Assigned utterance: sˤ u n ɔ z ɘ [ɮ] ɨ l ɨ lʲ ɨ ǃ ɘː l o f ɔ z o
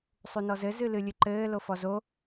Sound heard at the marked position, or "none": z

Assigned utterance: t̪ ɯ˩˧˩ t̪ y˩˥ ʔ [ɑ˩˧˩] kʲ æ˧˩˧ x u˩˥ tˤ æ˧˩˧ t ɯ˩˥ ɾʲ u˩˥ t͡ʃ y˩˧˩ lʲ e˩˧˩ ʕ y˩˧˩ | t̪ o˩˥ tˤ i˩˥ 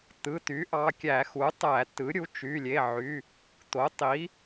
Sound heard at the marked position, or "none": ɑ˩˧˩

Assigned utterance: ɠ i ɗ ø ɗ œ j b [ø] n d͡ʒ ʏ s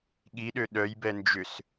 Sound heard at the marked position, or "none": ɛ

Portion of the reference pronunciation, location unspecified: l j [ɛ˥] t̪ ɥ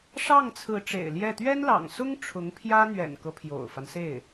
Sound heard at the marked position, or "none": ɛ˥˩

